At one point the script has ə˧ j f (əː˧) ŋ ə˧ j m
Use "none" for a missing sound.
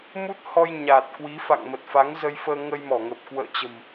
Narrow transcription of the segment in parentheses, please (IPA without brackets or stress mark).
əː˧